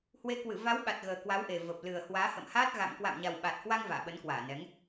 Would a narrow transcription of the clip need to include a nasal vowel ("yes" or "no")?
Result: no